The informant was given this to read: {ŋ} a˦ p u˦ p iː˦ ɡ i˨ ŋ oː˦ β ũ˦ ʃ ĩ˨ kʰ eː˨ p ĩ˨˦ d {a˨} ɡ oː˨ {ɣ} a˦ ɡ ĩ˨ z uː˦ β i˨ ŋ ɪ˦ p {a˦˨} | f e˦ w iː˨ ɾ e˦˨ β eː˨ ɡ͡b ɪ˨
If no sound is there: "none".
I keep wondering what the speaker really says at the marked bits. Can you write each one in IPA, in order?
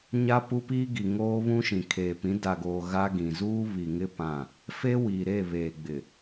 ɲ, a˨, ɣ, ã˦˨

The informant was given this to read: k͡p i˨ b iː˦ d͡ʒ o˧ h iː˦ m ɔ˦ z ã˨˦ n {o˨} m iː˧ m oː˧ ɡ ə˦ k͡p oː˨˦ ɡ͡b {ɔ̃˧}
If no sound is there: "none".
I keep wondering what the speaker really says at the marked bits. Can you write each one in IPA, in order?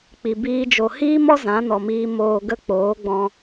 ɔ˨, ɔ̃˧

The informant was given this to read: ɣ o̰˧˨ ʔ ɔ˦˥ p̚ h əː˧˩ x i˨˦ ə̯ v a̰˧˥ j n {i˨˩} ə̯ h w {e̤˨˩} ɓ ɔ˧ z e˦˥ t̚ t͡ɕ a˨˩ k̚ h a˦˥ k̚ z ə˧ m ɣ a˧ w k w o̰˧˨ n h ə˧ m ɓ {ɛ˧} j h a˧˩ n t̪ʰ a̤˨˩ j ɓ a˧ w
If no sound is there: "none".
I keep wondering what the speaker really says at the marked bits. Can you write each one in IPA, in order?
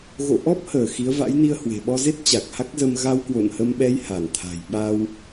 i˧, e̤˨˩, ɛ˧

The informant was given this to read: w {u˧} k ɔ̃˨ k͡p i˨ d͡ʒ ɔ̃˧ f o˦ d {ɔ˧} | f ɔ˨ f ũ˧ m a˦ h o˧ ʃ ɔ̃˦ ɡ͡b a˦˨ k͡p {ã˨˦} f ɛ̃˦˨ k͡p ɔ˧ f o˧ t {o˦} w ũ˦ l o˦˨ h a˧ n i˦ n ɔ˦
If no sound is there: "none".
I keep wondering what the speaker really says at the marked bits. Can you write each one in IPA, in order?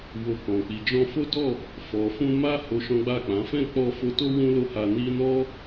o˧, ɔ˦˨, ã˨˦, o˦

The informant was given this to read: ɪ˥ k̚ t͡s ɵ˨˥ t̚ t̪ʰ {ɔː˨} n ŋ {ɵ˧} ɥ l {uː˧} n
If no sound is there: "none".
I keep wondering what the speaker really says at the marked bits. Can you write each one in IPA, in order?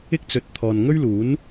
ɔː˨, ɵ˥, uː˨˥

